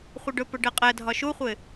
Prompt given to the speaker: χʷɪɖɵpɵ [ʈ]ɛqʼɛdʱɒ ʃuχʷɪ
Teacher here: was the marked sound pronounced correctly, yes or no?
no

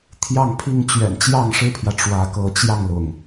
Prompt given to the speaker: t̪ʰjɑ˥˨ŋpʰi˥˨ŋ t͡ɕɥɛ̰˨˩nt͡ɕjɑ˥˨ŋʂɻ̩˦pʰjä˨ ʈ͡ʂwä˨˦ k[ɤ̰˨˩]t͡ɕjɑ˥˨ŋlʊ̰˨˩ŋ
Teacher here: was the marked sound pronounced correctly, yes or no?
no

